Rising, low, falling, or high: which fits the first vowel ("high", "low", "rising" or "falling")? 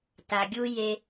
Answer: low